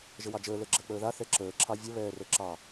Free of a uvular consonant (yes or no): yes